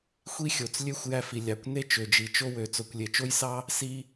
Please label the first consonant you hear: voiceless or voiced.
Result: voiceless